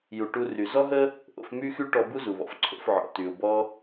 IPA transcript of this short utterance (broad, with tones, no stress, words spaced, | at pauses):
ju˩ʈu˧ry˩ zɔ˥ɦə˥ | ʔo̰˧fmy˥xy˥ʈɔ˧ bu˥zu˩βɔ̰˩fǀʰo̰˧f ʕɔ̰˩ty˩ʊ̯ bɔ˧